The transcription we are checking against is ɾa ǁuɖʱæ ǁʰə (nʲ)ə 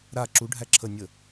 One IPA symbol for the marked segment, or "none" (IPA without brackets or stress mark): nʲ